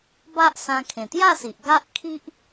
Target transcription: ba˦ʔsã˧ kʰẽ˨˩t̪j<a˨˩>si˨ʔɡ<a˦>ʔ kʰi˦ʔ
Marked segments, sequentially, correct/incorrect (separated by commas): incorrect, correct